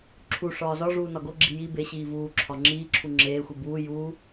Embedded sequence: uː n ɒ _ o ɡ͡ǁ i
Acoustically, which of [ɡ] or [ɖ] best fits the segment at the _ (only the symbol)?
ɡ